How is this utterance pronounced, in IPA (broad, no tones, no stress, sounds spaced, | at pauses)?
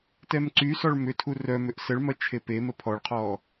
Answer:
t ɛ m ǀ y s ɔ ɭ m ʏ tʰ u r œ m ʏ ʔ s ə ɭ m ɐ t͡ʃʰ e p e m ə pʰ ɔ ɭ qʰ ɔ